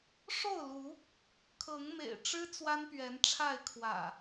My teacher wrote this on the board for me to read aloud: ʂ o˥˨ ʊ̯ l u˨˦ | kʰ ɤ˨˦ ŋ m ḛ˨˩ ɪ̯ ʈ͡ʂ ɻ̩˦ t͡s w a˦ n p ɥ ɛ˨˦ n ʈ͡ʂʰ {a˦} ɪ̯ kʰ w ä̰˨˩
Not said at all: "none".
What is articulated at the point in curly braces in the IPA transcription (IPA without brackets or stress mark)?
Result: a˥˨